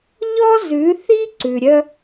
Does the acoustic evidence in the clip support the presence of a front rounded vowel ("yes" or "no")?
yes